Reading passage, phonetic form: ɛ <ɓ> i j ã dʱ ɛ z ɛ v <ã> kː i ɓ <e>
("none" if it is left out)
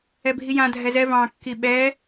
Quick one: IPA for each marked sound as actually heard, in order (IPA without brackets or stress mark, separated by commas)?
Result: bʱ, ɑ̃, ɛ